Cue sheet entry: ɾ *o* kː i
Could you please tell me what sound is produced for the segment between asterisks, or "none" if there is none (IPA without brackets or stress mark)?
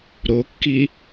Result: o